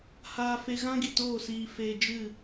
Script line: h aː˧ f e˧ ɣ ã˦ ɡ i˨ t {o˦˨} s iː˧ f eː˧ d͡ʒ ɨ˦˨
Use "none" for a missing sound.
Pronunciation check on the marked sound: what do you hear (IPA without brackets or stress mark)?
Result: oː˦˨